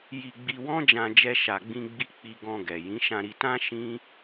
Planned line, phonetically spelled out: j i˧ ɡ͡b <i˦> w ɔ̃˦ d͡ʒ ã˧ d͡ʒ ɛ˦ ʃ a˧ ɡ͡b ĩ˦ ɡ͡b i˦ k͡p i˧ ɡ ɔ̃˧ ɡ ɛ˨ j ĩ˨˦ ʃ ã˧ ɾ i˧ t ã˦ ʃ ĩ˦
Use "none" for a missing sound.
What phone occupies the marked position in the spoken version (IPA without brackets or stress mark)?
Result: i˧